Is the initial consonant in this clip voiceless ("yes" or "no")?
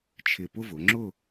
yes